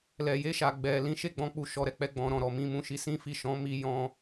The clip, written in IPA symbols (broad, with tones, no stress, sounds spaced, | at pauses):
l ɛ˨ j e˧ ʃ a˨ ɡ͡b ɛ˨ l ĩ˨˦ ʃ e˦˨ ɡ͡b ɔ̃˨˦ k͡p u˧ ʃ ɔ˧ ɾ ɛ˧ k͡p ɛ˧ ɡ͡b ɔ̃˦ ɾ ɔ̃˦˨ ɾ ɔ˨ m ĩ˧ m ũ˦ ʃ i˧ s ĩ˦ f i˦˨ ʃ ɔ̃˨˦ m i˧ j ɔ̃˦